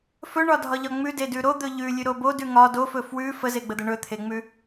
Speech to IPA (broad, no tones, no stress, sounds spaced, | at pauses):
f ɵ ɳ ɒ dʱ ɒ ʎ ɒ ŋ͡m ʉ d e d ʉ ɾ o d̪ ɵ ʎ ʉ lʲ ʉ ɾ o b o d ʉ ŋ ɒ d o f ɵ f w ʉ f ə z e ɡ͡b ə d̪ ə ɳ ɵ t̪ʰ e ŋ͡m ʉ